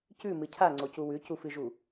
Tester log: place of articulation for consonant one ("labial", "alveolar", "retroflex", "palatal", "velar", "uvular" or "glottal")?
palatal